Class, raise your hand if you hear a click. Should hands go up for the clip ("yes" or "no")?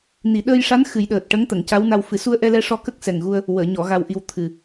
no